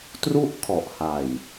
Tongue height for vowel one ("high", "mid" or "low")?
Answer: high